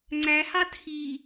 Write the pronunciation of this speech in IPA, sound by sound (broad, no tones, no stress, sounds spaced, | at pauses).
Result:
ŋ͡ǀ æ h ɑ tʰ i